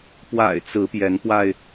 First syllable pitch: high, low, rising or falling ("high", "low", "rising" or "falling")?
low